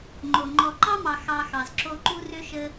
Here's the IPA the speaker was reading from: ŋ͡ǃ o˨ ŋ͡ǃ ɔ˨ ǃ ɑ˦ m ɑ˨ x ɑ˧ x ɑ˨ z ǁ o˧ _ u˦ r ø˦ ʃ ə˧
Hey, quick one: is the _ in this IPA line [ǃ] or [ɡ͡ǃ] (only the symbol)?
ǃ